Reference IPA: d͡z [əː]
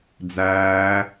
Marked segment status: incorrect: æː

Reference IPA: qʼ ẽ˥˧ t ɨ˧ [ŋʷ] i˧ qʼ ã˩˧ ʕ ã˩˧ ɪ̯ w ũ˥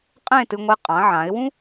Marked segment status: correct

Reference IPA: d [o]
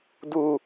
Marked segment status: incorrect: u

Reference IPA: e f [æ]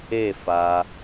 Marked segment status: incorrect: a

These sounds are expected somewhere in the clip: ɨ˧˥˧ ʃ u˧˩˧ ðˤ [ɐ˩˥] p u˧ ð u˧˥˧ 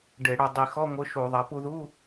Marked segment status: correct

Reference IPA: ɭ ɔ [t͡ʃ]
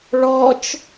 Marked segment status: correct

